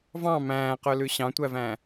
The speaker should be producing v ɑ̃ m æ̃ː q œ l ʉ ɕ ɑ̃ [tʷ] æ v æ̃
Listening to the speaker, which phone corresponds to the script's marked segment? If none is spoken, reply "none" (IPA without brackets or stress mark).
tʷ